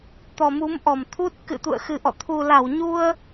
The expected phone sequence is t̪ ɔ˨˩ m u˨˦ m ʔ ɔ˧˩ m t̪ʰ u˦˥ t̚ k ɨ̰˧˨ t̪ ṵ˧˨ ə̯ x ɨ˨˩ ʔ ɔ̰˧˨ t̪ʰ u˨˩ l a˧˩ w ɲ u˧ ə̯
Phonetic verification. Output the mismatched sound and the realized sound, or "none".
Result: none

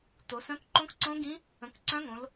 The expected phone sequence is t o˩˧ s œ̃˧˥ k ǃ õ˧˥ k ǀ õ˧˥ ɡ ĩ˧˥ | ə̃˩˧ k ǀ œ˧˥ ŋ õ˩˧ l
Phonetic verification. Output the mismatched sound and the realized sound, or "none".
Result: œ˧˥ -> œ̃˧˥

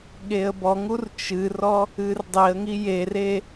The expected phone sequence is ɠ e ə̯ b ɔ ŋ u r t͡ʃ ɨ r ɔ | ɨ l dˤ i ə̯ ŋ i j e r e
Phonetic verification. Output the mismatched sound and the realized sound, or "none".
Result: l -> r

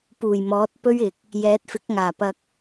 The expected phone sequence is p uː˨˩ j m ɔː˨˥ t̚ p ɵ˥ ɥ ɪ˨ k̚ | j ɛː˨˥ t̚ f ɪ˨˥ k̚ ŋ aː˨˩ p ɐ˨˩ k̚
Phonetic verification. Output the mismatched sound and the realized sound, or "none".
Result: ɐ˨˩ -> ɐ˧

